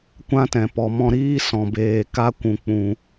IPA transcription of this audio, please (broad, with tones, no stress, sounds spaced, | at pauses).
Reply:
kʷ ã˦ t ɛ̃˨ p ɔ˨ m ɔ̃˧ ɾ iː˦ s ɔ̃˨ b eː˨ k a˦ kʷ ũ˨ k͡p ũ˨